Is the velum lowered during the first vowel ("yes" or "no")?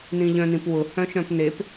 yes